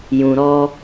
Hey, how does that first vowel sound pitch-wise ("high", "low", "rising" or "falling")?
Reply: low